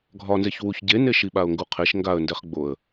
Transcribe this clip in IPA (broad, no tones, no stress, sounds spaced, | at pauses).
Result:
ɡʱ ɒ n z e ç w u ç ɟ e n e ʃ i ɓ a ʊ̯ ŋ ɡ u qʰ e ʃ ŋ ɡ a ə̯ n d ɛ χ ɡ͡b o ə̯